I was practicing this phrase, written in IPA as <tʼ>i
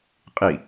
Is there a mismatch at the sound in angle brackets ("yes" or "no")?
yes